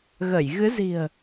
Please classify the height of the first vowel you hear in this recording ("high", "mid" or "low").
mid